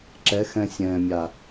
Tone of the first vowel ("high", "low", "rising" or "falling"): rising